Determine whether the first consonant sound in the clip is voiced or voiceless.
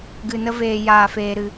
voiced